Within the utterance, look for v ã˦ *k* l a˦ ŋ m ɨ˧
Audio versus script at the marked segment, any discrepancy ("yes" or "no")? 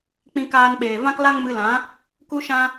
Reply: no